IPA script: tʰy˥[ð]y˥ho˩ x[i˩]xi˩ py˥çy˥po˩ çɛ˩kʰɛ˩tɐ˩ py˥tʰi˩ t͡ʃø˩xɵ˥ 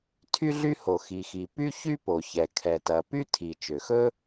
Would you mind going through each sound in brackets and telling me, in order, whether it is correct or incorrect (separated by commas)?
incorrect, correct